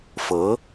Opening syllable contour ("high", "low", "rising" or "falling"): rising